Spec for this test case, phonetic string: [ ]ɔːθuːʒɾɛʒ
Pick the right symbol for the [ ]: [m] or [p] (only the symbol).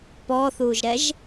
p